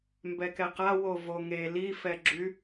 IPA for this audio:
mbɛkɛqa wovoŋe lifɛɡ͡ǁy

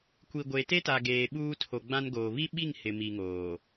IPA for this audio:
kʷi˨ ɡʷe˨te˦ta˨ ɡeː˨ɓuː˦ tʰo˨ɡ͡bã˦nɡoː˨ βi˦ ɓi˦˨ŋ hɪ˨mi˨ŋoː˨

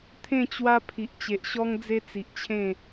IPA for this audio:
t̪ʰẽ˥˧t͡ɕwa˦ pʰi˨ʔt͡ɕe˨ʔɕɔ˦ŋd͡ze˦ t͡si˨ʔt͡ɕʰẽ˥˧

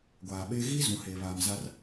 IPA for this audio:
ɡʷaː˨ɓeː˦ ɣi˦ zũ˨heː˨ βaː˨mza˦r

